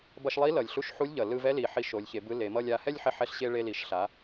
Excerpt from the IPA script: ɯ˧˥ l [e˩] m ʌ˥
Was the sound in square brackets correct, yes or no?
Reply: no